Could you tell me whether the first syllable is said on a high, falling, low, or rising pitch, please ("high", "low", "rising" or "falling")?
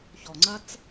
low